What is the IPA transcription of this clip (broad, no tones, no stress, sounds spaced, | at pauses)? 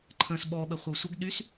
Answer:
ǃʰ ə̃ː s ɓ ɔ ɓ ə χʷ ə w sʷ ə ɡ ɗ y s